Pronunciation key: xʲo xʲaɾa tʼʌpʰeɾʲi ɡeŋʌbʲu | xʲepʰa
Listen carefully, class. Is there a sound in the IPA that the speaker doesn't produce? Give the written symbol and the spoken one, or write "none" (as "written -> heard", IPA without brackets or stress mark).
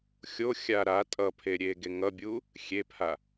i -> e